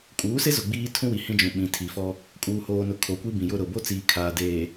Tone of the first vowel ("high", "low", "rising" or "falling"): rising